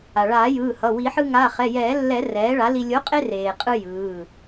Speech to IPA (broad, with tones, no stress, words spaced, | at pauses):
a˩ɭaː˨˩˦jɯː˩˧˩ hʌ˩˧˩wi˨˩˦ħɯ˧ ŋa˩˧˩χɛ˩˧˩ jɛː˨˩˦lːɛ˨˩˦ rɛː˩˥ɭa˩˥ li˧ lʲo˩˥qʼe˧reː˩ qʼɯ˧ jɯː˩˧˩